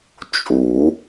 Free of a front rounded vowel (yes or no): yes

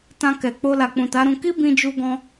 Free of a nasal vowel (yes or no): no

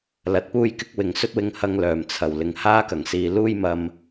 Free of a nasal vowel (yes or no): yes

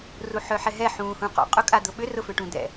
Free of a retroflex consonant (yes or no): no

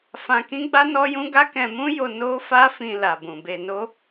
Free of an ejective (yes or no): yes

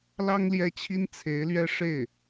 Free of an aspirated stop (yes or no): no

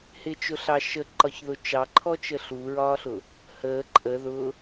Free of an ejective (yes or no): no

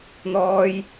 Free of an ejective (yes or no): yes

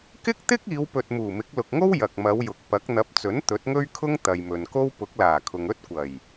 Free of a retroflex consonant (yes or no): yes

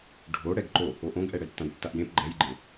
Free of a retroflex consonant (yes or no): no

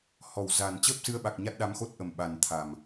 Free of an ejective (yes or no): yes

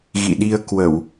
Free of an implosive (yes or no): no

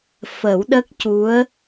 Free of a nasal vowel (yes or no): yes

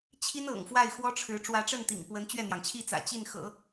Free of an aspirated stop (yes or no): no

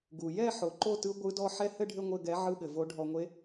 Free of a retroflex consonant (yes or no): no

